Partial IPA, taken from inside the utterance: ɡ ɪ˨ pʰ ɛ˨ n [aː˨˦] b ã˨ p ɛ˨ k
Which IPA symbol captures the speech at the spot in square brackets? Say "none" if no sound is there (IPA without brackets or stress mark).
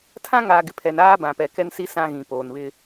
aː˦